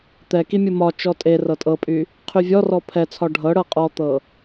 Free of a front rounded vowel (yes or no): no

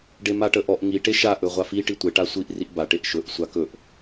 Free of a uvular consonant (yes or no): no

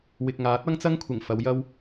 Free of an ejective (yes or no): yes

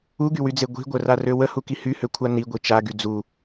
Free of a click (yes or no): yes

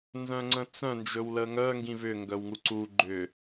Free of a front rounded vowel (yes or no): no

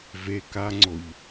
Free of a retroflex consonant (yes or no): yes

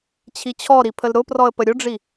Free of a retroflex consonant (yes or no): no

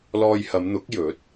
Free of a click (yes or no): yes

